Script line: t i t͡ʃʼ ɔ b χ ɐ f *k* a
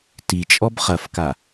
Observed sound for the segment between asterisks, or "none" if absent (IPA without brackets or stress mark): k